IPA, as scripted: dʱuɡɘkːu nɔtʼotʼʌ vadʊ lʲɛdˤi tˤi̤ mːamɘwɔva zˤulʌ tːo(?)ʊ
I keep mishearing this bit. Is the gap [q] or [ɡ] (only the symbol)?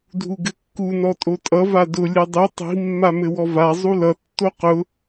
q